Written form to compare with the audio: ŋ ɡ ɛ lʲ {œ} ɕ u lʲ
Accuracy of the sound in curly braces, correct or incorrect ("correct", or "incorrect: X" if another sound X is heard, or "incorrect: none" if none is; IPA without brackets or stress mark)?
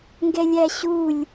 incorrect: æ